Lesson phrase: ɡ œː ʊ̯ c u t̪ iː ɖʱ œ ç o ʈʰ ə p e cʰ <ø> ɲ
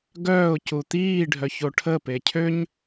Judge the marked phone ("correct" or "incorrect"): correct